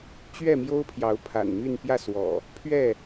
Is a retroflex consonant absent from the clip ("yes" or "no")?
yes